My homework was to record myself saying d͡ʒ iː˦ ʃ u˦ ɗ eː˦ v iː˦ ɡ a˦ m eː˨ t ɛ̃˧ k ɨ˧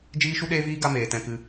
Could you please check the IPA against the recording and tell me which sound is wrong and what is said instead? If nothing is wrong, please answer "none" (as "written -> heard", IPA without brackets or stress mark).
none